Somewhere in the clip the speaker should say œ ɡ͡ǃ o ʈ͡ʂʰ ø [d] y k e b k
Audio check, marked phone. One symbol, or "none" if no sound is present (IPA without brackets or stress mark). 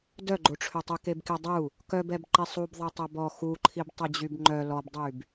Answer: tˤ